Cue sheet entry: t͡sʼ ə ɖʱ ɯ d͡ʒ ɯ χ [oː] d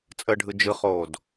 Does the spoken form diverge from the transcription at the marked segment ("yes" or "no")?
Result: no